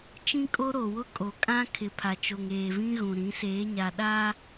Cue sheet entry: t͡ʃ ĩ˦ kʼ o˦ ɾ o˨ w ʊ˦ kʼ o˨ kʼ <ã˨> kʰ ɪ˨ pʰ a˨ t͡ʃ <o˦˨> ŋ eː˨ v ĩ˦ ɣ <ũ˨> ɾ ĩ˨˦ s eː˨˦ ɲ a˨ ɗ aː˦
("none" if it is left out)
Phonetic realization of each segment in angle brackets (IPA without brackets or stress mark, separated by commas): ã˦, o˨, ũ˨